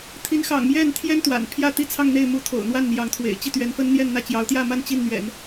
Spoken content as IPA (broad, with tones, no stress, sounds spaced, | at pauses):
t̪ʰ i˧˥ n x ɑ̰˨˩ ŋ m j ɛ˥˩ n t̪ʰ j ɛ˥ n t̪ w a̰˨˩ n pʰ j ä˥˩ t̪ i˥ t͡sʰ ɑ˥˧ ŋ n̪ e˥˩ ɪ̯ m u˧˥ t̪ʰ o̰˨˩ ʊ̯ n̪ w a˥˩ n n̪ j ɑ˧˥ ŋ t̪ʰ w ḛ˨˩ ɪ̯ t͡ɕ i˥˩ t̪ ɥ ɛ˧˥ n f ə˥ n n̪ j ɛ˥˧ n n̪ ä˥˩ t͡ɕ j ɑ˧˥ ʊ̯ t̪ j ä˥˧ m a˥˧ n t͡ɕ i˥˩ n n̪ ɥ ɛ̰˨˩˦ n